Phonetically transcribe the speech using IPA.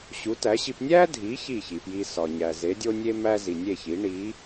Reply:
ɕu˩˥tæ˩˥ɕi˧p nʲæ˥dʱi˩˥ çi˥˩çi˩pji˧ sɒ˩ɲæ˩ ze˩˥dʲo˥nʲe˥ mæ˥zi˩ nʲe˥˩çi˩˥ ɳi˩˥

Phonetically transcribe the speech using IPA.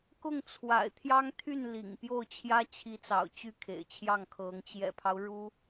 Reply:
kʊ˥˩ŋt͡sʰwa̰˨˩ɪ̯t̪ʰjɑ˥ŋt̪ʰy˥˩n lḭ˨˩ŋ pjo˥˩ʊ̯t͡ɕʰjä˥ t͡ɕʰi˧˥t͡sɑ̰˨˩ʊ̯ t͡ɕy˥˩kʰḛ˨˩ɪ̯t͡ɕʰjɑ˥˩ŋkʰɤ˧˥ŋ t͡ɕjɛ̰˨˩pʰɑ˦ʊ̯ ɻu˥

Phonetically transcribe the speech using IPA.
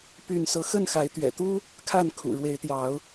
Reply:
py˥˨nsɤ˦ xə˥˨nxa˨˦ɪ̯ t̪ɥɛ̰˨˩t̪u˦ | kʰa˥˨nkʰṵ˨˩ ɻwe˨˦ɪ̯t̪jɑ˨˦ʊ̯

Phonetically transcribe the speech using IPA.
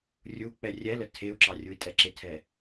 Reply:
rʲu k͡pɛrʲɛlə tʰeu̯ǁɑ rʲui̯tʼɛǁɪtʰɛ

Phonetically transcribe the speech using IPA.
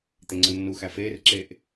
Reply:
t̪eŋ͡ǀənːuxæ feːrǁeːʔ

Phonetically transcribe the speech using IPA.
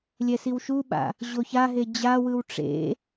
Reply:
lʲɛsiwʃuɓa̰ | ʑoçaɦe d͡ʑawɯw ʈ͡ʂḛ

